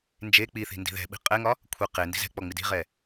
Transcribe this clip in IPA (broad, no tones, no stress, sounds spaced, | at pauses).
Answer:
n d͡ʒ e k͡p i θ i̤ n d i̤ ð ɛ̤ ɓ i̤ qʼ ɛ ŋ ɒ | kʷʰ e q e n d i̤ z ɛ̤ k͡p ɔ ŋ͡m i d i̤ ʁ ɛ